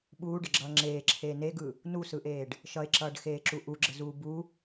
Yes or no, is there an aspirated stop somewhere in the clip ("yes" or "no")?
yes